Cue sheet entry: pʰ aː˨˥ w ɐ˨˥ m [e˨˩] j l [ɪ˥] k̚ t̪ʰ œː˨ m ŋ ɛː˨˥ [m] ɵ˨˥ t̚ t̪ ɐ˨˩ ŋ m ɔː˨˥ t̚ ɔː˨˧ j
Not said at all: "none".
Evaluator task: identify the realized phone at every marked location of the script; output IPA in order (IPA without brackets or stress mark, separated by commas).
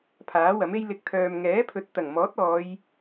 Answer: e˥, ɪ˧, pʰ